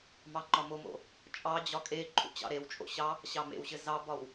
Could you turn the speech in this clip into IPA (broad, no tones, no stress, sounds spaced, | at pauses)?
m ɑ ŋ͡ǃ ɒ m o m o̰ | t͡ʃʼ ɑ d͡ʑ ɒ kʼ e ǃʰ ṵ t͡ɕ ɑ̰ ɾ e w t͡ʃʼ o̰ ɕ ɑ | ɕ ɑ m ḛ w ɕ ɘ z ɑ b ɒ w